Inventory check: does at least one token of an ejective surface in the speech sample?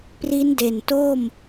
no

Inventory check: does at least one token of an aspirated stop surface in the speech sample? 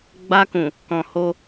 no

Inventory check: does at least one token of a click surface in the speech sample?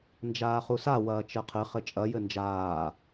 no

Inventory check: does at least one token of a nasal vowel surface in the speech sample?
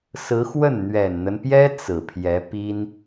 no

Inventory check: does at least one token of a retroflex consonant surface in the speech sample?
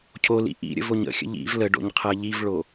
yes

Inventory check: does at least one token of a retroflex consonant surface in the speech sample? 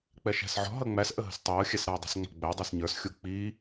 no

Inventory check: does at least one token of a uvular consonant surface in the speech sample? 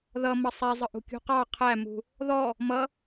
yes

